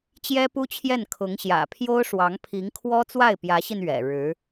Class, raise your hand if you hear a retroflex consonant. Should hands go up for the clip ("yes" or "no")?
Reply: yes